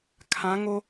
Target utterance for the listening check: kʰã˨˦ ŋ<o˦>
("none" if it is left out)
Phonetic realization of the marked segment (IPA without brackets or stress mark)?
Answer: o˦